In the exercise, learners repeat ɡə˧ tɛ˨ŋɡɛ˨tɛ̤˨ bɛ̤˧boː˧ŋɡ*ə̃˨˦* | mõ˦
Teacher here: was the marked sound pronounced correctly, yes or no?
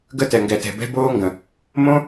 no